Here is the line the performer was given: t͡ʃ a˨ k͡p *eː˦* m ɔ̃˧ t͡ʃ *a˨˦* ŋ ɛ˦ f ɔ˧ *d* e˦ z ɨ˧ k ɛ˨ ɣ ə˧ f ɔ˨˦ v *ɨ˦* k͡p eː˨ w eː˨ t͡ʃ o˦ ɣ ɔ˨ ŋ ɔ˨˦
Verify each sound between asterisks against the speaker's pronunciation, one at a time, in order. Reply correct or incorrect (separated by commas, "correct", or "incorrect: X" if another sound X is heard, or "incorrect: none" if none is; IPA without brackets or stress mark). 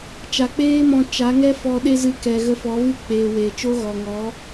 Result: correct, correct, incorrect: ɗ, correct